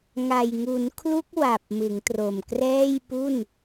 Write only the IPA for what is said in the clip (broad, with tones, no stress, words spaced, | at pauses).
ŋa˨˩jŋu˩˦nkʰlu˦˥k̚ wa˨˩p̚ mɯ˩˦ŋtro˨˩mkrɛː˥˩jpu˥˩n